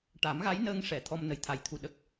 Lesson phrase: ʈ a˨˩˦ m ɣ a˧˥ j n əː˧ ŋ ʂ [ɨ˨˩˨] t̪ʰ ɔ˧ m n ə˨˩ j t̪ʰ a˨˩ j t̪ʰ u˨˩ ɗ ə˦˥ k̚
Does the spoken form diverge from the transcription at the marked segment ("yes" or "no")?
yes